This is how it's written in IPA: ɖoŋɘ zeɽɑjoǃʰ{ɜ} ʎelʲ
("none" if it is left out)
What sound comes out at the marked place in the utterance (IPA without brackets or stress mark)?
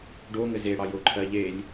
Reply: ɜ